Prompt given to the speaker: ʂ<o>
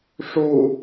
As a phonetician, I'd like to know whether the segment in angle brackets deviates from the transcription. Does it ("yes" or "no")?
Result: yes